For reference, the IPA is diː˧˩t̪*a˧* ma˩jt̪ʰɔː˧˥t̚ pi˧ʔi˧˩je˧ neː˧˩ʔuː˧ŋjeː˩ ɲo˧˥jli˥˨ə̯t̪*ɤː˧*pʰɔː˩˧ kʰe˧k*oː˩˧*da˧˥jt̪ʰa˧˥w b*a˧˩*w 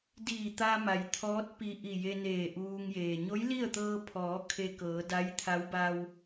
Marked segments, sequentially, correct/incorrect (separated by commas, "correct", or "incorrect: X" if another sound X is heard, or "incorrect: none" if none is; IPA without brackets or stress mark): correct, correct, incorrect: ɤː˩˧, incorrect: a˧